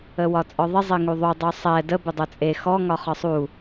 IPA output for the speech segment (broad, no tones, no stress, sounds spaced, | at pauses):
ə w ɒ t͡sʼ ɔ ðˤ ɪ zˤ ɪ ŋ u ðˤ u dˤ u sˤ ɛ d ə b ɪ dˤ ɵ t͡sʼ e x ɔ ŋ ɒ χ ɒ sˤ u